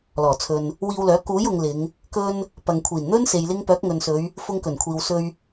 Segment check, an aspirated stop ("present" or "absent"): present